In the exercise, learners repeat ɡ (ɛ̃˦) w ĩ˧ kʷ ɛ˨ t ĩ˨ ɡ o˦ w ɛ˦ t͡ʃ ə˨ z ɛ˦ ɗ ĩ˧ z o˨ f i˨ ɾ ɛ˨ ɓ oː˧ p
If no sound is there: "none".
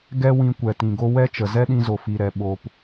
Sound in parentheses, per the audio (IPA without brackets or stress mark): ɛ˦